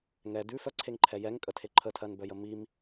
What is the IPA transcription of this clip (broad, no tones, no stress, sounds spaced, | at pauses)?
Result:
ŋ ɛ d ʉ f œ ǀʰ e ŋ ǃʰ ɛ j ɛ ŋ kʼ ə tʰ e ǃʰ ə tʰ ɜ n b œ j ə m i m